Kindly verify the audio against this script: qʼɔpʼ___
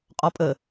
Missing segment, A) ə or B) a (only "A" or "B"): A